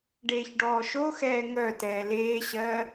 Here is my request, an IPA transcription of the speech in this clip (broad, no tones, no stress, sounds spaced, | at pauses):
ɖ eː ç ɖ ɔː ʃ o x ɛː ŋ œ t ɛː l eː ɕ ɜː